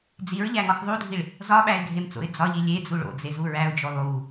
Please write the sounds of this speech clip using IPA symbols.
d͡z i ɹ ʎ æ ŋ ɒ x ðˤ u dʱ i ɭ | z ɒ ɓ æ ɪ̯ ɡʱ e m t͡s o̰ ɪ̯ d͡z ɒ ʎ i lʲ e d͡z u ɭ o̰ d͡z e z u ɹ æ ʊ̯ d͡ʒ o lˠ u

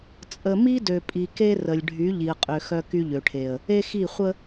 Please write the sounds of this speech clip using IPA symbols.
t͡sʼ ə˨ m i˦ d ø˨ pʼ i˨ k e˦ r ə˨ lʲ ɖʱ y˨˦ ʎ i˨ ə̯ qʼ ø˨ x œ˦ k y˦ ʎ ø˨ ʈʰ e˨ ə̯ | e˦ x i˦˨ χʷ ə˦

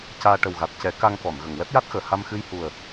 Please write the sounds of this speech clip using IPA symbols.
c aː˧ ʈ ə˨˩ w ɣ a˨˩ t̚ c ɛ˨˩˦ k a˧ ŋ k ɔ˨˩˨ n ɣ ə˨˩˨ ŋ w ɛ˦˥ p̚ j a˦˥ t̚ x əː˨˩˨ h a˧ m x ɨ˧ j h u˨˩ ə̯

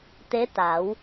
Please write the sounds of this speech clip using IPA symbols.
t̪ e˧˥ t̪ a˩˧ w

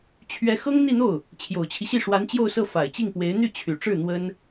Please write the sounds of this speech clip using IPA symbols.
t͡ɕʰ ɥ ɛ˧˥ x ɤ˥ ŋ n̪ i˥˧ n̪ o˥˩ ʊ̯ | t͡ɕʰ j o˨˩ ʊ̯ t͡ɕʰ i˦ ɕ i˥˩ ʂ w a˧˥ n t͡ɕ j o˥˧ ʊ̯ s ɤ˥˩ f a˨˩ ɪ̯ t͡ɕ i˥˩ ŋ p w e˧˥ ɪ̯ n̪ y˥˩ t͡ɕʰ y˨˩ ʈ͡ʂ ɻ̩˥˩ n̪ w ə˥ n

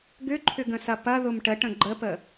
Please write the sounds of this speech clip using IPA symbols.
ɡ ʏ ǃʰ ʏ ɡ ə̃ s ɐ p ɐ ð ʊ m ʈ ə ʈ ə̃ ɡ͡ǃ ə p ə

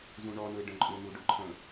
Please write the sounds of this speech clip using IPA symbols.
z ũ ɳ ɔ n ʊ ɪ̯ ɖ ə̃ ǃʼ ʊ n u ɖ ʊ ǃʰ ə̃

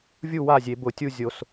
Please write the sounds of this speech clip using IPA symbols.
vʲ u˥˩ w a˥˩ zʲ e˨˩˦ b ʊ˨˩˦ tʲ u˥˩ zʲ o˨˩˦ s

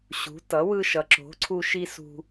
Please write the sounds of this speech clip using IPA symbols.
ɕ ṳ˩˥ t ʌ˩˥ w ɯ˧ ʃ ʌ˩˥ ǁ o̤˩˥ ǀʰ u˧ ʃ i˧ s ṳ˧

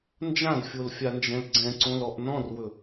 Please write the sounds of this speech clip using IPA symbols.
n d͡ʒ ã d fʲ o l fʲ a n d͡ʒ ɛ̃ l ɡ͡ǀ ɛ̃ ǀ õ l ɔ ʔ n ɔ̃ r w ɵ

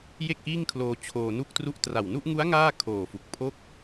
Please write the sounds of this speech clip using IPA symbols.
j e˥˩ k̚ ʔ iː˥˩ ŋ kʰ l oː˧ t͡ɕʰ oː˧ n u˥˩ k̚ t r u˥˩ ʔ t r a˨˩ w n u˥˩ ʔ ŋ u˦˥ a̯ ŋ aː˥˩ kʰ oː˨˩ f u˨˩ k̚ pʰ o˥˩ k̚

